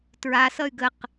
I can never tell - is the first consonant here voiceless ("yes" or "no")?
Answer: yes